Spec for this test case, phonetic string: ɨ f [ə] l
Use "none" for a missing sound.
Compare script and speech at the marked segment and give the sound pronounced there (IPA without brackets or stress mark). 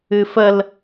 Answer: ə